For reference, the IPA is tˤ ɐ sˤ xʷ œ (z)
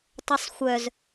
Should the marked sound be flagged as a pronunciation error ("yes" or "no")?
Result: no